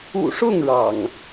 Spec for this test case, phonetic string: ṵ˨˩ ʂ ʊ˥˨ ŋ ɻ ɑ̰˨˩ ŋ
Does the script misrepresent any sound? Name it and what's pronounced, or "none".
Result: none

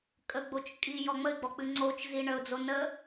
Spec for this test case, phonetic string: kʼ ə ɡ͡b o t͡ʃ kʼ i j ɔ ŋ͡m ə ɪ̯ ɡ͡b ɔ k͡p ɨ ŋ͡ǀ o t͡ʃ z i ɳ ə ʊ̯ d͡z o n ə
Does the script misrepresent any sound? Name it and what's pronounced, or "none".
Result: none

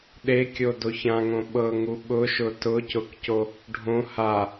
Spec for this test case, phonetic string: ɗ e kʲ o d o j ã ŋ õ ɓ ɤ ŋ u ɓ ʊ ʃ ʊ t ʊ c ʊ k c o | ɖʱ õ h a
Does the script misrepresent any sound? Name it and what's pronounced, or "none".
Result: j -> ç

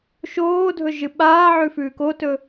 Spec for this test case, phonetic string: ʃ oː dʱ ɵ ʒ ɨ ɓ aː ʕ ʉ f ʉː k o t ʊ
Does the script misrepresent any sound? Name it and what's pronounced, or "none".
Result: ʊ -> ɵ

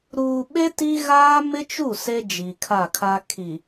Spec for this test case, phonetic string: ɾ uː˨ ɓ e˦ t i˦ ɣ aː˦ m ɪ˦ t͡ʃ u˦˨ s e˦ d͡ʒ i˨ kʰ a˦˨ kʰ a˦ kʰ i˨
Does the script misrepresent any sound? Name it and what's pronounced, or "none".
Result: none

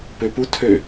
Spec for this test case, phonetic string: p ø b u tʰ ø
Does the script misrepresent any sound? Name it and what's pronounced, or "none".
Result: b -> p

